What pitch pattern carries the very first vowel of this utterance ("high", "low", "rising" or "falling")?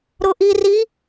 low